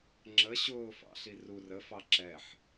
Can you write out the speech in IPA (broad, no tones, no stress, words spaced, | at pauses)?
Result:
ŋ͡ǁə ɕʊːfɑ̰ɬi rur əfɑ ǁɛħ